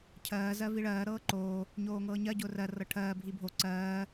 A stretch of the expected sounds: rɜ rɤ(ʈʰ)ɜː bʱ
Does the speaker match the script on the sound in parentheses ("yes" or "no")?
yes